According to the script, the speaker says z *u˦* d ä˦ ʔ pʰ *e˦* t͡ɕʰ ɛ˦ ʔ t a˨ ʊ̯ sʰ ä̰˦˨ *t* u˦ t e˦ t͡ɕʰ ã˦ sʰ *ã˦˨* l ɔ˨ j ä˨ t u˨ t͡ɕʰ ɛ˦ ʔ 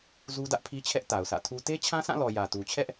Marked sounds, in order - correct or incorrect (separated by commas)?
correct, incorrect, incorrect, correct